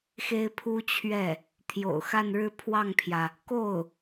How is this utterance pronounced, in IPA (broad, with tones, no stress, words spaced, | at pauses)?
xe˥ɪ̯ pʰu˥t͡ɕʰɥɛ˥˩ | t̪ʰjo̰˨˩ʊ̯xa˥˧nɻɻ̩˥˧ pʰwɑ˥˩ŋpʰjä˩ | ko˥˩ʊ̯